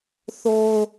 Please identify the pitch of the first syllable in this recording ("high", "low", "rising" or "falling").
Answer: high